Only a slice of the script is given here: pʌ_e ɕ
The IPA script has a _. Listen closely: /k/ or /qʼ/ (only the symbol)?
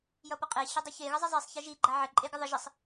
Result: qʼ